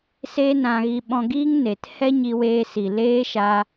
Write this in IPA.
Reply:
s eː˦ n ã˧ ɣ i˧ ɓ ɔ̃˧ ɡ iː˦ ŋ n e˨ t h ɛ˦ ɲ i˧ w eː˧ s i˨ l eː˦ ʃ a˧

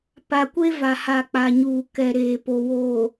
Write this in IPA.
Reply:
p a˨ kʷ e˦ v a˨ h a˨ k͡p a˨ ɲ uː˨ k ɛ˨ ɾ eː˨ p o˨ w oː˨

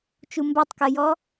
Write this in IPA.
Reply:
t͡ʃ u m b a tˤ k ɜ j ɔ

